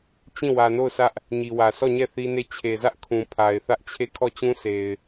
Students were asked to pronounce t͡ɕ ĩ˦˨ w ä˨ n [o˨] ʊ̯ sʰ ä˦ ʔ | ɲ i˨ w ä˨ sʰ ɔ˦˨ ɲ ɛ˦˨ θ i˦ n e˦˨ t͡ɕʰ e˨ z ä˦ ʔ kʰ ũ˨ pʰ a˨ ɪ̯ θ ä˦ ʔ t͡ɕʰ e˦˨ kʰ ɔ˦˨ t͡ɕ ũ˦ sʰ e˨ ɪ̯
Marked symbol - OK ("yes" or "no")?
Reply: no